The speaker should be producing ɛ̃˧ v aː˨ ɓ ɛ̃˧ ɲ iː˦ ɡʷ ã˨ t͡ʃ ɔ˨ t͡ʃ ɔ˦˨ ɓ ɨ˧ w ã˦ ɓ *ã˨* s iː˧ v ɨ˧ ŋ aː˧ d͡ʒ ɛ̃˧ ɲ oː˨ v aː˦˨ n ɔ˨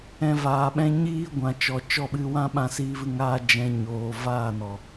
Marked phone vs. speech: incorrect: ã˧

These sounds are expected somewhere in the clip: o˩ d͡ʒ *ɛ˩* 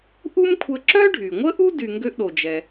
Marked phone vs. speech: correct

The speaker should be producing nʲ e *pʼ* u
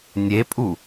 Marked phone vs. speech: correct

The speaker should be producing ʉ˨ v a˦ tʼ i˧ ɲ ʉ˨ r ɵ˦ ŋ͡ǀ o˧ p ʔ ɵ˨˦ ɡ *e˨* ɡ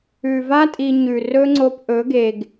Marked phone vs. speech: correct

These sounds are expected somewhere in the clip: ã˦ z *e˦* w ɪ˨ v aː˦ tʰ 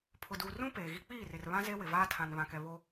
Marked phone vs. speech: correct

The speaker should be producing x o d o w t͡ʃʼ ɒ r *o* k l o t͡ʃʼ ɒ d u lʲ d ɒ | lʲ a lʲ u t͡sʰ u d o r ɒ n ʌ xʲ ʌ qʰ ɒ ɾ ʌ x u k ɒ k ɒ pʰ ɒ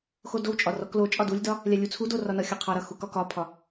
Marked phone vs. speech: incorrect: ɔ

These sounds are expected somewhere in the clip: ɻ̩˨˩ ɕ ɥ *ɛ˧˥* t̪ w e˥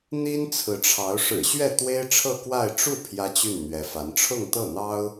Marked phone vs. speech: incorrect: ɛ˥˩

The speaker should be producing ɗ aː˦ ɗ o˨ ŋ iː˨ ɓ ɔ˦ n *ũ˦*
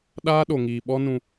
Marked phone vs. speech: correct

